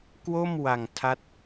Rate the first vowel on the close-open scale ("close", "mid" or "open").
mid